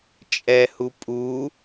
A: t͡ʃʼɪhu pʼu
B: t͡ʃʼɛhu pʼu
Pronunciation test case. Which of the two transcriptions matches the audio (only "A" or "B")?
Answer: B